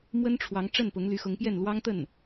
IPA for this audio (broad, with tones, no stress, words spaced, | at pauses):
mwə˥nʈ͡ʂʰwɑ˧˥ŋ ʈ͡ʂə˥˩npʊ˧˥ŋ ly˧˥xʊ˧˥ŋpjɛ˥˩n lwɑ˥ŋt̪ə˥˩n